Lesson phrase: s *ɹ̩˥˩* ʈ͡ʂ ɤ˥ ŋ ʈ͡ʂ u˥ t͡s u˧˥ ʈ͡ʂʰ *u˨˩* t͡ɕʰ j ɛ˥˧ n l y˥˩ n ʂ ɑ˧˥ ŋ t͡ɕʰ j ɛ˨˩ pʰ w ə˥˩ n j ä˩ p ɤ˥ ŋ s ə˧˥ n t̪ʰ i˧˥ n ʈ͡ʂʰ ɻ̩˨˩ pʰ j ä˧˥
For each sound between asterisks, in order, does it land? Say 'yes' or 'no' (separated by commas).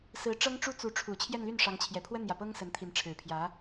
no, yes